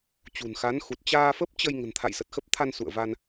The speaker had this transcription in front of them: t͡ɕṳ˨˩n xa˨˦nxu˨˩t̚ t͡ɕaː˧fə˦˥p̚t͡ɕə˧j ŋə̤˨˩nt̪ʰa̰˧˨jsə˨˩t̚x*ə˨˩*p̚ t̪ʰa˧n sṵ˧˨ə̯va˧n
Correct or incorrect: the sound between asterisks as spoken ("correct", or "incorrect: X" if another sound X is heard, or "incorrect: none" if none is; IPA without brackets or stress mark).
incorrect: ə˦˥